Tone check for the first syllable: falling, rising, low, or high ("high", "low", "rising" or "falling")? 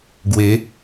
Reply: rising